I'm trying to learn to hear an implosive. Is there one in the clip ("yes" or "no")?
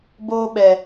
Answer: yes